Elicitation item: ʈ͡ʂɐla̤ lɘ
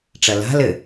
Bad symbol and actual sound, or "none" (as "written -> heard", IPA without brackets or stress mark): none